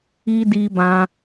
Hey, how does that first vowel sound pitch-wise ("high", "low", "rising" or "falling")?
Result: high